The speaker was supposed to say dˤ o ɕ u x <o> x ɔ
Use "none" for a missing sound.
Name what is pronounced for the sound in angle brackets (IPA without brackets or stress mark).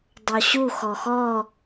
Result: ɔ